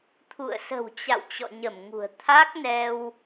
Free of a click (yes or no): yes